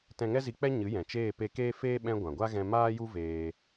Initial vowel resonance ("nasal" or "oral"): nasal